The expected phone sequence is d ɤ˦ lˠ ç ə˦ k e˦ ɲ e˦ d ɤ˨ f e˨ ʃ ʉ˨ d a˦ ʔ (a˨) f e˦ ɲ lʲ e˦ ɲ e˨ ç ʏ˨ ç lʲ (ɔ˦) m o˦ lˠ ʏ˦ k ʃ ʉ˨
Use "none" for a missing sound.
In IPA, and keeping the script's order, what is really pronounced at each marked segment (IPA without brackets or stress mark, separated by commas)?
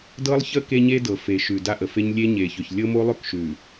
ə˨, ɤ˦